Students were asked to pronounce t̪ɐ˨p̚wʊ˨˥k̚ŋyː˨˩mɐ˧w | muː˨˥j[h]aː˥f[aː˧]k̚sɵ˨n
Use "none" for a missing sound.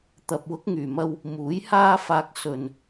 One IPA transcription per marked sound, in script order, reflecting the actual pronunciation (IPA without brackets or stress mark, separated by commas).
h, aː˧